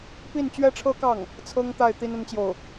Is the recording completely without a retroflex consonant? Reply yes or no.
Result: no